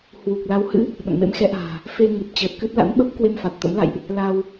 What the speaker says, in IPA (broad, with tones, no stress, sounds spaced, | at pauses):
h w u˨˩ k̚ l a˨˦ w h ɨ̰˧˥ | ɓ ə̰˧˨ n m ḛ˧˥ m x ɛ˨˦ ʔ a̤ː˨˩ | f e˧ ŋ ɨ˨˩ p̚ t͡ɕ əː˨˩ t̚ k ɨ˦˥ t̚ l a̰˧˥ n ɓ ə˦˥ p̚ k w e˧ m f a˨˩ t̚ t̪ ə̰˧˥ m l a̰˧˨ j ʔ | l a˧ w